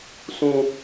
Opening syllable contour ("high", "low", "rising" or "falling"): high